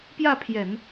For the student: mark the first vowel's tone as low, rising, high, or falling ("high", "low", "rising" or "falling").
falling